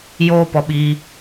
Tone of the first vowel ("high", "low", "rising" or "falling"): high